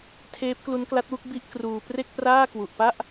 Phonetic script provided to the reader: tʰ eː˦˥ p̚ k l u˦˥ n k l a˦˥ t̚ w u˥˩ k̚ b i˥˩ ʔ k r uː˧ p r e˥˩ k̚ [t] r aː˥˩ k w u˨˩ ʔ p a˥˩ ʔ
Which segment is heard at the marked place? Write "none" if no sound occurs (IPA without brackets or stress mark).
p